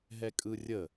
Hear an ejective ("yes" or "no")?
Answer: yes